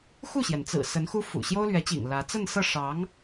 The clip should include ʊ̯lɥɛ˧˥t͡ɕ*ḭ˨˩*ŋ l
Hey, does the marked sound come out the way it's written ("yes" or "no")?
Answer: yes